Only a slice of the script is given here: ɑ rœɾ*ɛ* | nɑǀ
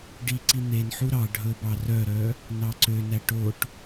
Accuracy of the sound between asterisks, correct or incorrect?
incorrect